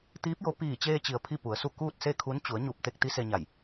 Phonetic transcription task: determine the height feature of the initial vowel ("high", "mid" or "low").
high